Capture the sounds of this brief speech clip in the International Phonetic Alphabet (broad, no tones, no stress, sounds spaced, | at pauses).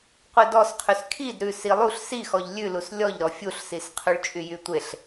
qʷ e d ɔ s qʰ y s kʰ i d ɾ ʉ s i lˠ u ɬ s i x ɔ ʎ lʲ ʉ l u s lʲ ɔ ʎ ɾ ɔ fʲ u ɬ s i s qʰ y ɭ t͡ʃʼ y j y tʷ e ɬ